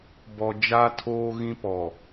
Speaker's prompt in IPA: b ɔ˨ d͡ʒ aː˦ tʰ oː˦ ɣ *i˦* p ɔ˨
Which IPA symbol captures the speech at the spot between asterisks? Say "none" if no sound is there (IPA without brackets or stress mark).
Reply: ĩ˦